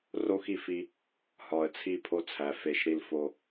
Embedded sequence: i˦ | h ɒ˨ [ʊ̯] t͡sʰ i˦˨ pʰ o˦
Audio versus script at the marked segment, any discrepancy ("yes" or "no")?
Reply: yes